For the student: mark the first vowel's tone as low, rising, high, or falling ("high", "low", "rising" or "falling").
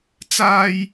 high